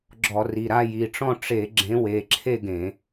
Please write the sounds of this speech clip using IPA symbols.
ɡ͡ǁ ɔ˧˩˧ r i˩˧˩ ɾ a˥˧ j i˩˧˩ ʈ͡ʂ ɔ̃˥˧ ʈ͡ʂ e˧˩˧ ɡ͡ǁ ẽ˨˦ w e˩˧˩ ǁʰ e˥˧ ɡ ẽ˧˩˧

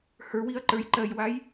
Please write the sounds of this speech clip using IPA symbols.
h ə˞ w i ɐ̯ ǃ ə˞ j ǃ ɜ j w a j

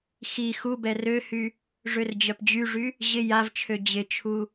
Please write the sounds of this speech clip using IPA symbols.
x i x u b ɛ r ø h y | ʐ ø r d͡ʑ œ p d͡ʑ y ʐ y | ʑ ɪ j a v t͡ʃʰ ø d͡ʑ ɪ t͡ʃʰ u

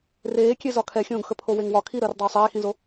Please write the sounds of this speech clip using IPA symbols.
r eː kʲ e z ɒ kʰ ɛ xʲ õː ɡ x ə pʰ o w e ŋ w ɒ kʰ i ɾ əː r dˤ i w sˤ eː x ĩ z o

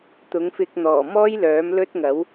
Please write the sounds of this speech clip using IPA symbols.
t̪ ʊ˨˥ ŋ f ɪ˧ k̚ n̪ ɔː˨˩ m ɔː˥ j l œː˨˥ m l ɵ˥ t̚ ŋ ɐ˨˥ w

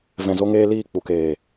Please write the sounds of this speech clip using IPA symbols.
v ɛ̃˨ z o˧ ŋ eː˧ l iː˦˨ k͡p u˨ k eː˨

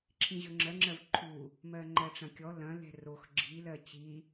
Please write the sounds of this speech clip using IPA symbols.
ǁʰ ĩ ʑ ɵ ŋ͡ǁ ɜ ŋ͡ǁ ɜ v ǃʰ u | m ɜ ŋ͡ǃ ɜ ʈ͡ʂ ɐ̃ kʲ ɔ l ɐ̃ l ɛ̤ r o x ɡ͡ǁ i l ɜ t͡ɕ i

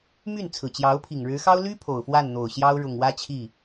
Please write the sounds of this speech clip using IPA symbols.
m y˥˩ n t͡sʰ ɹ̩˨˩ t͡ɕ j ɑ˧˥ ʊ̯ pʰ i˨˩ ŋ ɻ ɻ̩˧˥ x ɑ˥ ʊ̯ l y˥ pʰ o˨˩ ʊ̯ f w a˥˩ n n̪ o˨˩ ʊ̯ ɕ j ɑ˥ ʊ̯ ɻ ʊ˨˩ ŋ w ä˥ t͡ɕʰ i˥˩

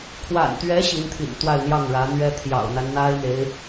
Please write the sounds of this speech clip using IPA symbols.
kʰ w a̰˨˩ n t̪ ɥ ɛ˧˥ ɕ i˧˥ n t̪ʰ ḭ˨˩ n t̪ w a˥˧ ɪ̯ n̪ j ɑ˥˩ ŋ ɻ ä˧˥ n̪ ɥ ɛ˥ t̪ʰ j ɑ̰˨˩ ʊ̯ n̪ a˦ n n̪ a˥ ɪ̯ n̪ e˧˥ ɪ̯

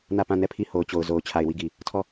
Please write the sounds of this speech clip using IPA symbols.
n ä˦˨ p ã˦˨ n ɛ˦˨ pʰ i˦˨ h o˨ ʊ̯ t͡ɕ o˨ ʊ̯ z o˨ ʊ̯ t͡ɕʰ a˨ ɪ̯ w i˦˨ ɡ i˨ | tʰ ɔ˦˨

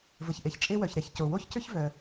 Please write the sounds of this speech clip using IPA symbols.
v ə˩ ç ʔ e˩ ç t͡ʃʼ e˥ w œ˩ ç ɾ ɛ˩ ç c o˩ w o˥ ç c ʏ˥ ç v œ˩

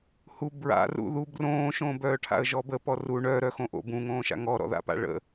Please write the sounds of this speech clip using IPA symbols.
h u b ɹ a̰ r ṵ ð u b r õː ʃ õː b œː ʈʰ a̰ ə̯ ʒ ɔ b ə p ɔ r u ɳ œ ɾ œ x õ ʔ o̰ b ũ ŋ õː ʃ a̰ ŋ ɔ ɾ ɔ̰ ð a̰ p a̰ ɭ ə̰

